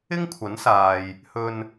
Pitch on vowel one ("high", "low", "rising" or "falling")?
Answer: high